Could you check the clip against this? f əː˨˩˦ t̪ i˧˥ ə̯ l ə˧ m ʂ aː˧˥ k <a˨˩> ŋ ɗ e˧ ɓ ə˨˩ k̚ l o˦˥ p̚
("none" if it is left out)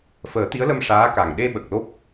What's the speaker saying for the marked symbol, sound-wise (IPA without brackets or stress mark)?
a˨˩